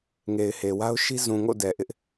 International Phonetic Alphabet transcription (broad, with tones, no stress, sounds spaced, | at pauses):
ŋ e˨ ɪ̯ h e˨ w a˦ ʊ̯ ʃ i˦ z ũ˨ ŋ o̰˦˨ d ɛ˨ ʔ ɪ˦ ʔ